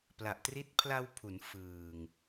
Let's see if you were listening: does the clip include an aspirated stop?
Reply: yes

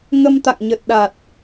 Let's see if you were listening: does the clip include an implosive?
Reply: yes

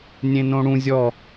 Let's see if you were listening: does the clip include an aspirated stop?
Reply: no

